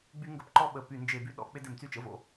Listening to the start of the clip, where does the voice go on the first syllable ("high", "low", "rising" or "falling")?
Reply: high